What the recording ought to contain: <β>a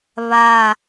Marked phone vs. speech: correct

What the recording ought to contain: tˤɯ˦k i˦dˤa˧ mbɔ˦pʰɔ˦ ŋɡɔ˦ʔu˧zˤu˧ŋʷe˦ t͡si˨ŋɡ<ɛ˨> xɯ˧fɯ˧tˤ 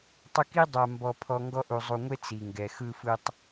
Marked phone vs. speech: correct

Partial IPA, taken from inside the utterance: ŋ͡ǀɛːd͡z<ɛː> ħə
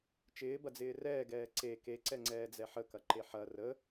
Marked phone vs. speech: incorrect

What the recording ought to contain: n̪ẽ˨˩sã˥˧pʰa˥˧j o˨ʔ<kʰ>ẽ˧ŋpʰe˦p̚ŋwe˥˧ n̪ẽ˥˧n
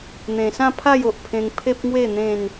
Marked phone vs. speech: incorrect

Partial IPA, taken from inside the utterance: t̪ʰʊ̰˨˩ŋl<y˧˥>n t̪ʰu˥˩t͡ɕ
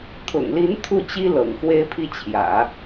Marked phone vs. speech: incorrect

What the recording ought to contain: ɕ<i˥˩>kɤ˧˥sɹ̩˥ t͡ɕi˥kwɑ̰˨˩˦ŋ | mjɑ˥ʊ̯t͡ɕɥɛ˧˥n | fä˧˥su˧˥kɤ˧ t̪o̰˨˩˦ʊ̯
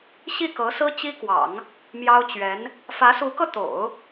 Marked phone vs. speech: correct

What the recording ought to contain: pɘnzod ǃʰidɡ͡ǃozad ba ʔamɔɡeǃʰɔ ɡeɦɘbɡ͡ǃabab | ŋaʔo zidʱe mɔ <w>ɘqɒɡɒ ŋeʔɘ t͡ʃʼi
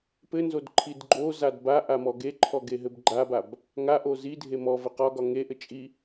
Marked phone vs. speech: incorrect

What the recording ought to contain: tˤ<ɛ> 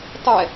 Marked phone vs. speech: correct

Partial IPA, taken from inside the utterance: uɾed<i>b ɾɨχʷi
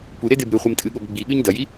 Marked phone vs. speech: incorrect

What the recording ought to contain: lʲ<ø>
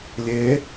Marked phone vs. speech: incorrect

